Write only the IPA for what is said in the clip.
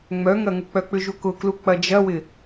ŋ͡mœŋɐŋʊk͡pœ k͡pʏʒukʊklu k͡pɐd͡ʒɐwɪ

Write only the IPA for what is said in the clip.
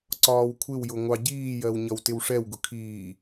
ǀɒːwkʷʰɪwjʊ ŋʷɑɟiːjɜw ɲʌwtɪwʂɛwɡʊ kʰiː

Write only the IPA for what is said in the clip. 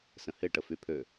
sə̃hɪ ʈəfypʰø

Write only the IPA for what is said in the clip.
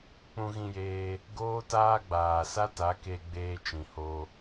k͡pũ˧ɣĩ˧jeː˧ | ɡoː˦taː˦ ɡ͡baː˨sa˦ta˨˦ke˧ ɡ͡beː˧t͡ʃĩ˨ho˧

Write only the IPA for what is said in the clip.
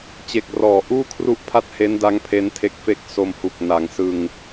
t͡ɕe˨˩k̚rɔː˩˦ʔuː˥˩ kʰru˥˩ʔpʰa˥˩t̚ he˦˥nda˦˥ŋ pʰe˦˥ntʰe˦˥k̚fe˥˩k̚ so˧mhu˨˩k̚ na˩˦ŋsɯ˧ŋ

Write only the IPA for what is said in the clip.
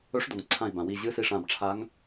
ɵ˧˥ʂdo˩ŋ ǀʰã˧˩i̯bã˩wi˧˩ ʑɨ˧˥si˧˩ʂã˧˩bʈ͡ʂʰa˧˥ŋ

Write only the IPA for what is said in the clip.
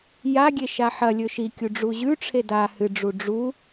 jaɡʲe ʃaħɐlʲɵ ʃikʲu ɖ͡ʐuʑʉʈ͡ʂʰe da hɨɖ͡ʐu ɖ͡ʐu

